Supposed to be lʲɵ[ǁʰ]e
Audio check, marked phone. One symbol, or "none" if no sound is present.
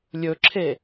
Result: ǁʰ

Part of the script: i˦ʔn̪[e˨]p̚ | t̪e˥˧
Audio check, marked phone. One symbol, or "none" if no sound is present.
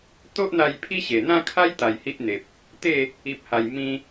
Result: e˨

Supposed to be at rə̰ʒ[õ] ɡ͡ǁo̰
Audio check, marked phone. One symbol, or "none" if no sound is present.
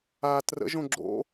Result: õ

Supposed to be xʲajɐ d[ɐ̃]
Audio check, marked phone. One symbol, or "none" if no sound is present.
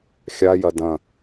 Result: ɐ̃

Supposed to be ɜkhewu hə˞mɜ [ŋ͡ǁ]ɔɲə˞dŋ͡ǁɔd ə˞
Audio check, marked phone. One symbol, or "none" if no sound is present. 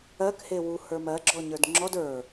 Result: ɡ͡ǁ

